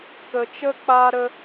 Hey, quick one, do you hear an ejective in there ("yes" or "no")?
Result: no